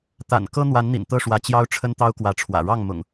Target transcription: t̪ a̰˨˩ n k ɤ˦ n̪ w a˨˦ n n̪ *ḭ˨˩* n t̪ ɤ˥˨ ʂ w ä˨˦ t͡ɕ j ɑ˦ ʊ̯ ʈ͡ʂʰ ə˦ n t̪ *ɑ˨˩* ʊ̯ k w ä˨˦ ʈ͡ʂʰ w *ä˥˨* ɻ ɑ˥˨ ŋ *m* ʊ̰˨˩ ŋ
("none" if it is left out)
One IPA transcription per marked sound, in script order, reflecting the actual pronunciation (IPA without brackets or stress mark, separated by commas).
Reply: ḭ˨˩, ɑ˦, ä̰˨˩, m